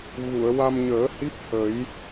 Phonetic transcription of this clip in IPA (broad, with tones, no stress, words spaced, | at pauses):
ɣu˨˩˨ə̯wa˧mɲəː˨˩˦hi˦˥p̚ hə˨˩˦j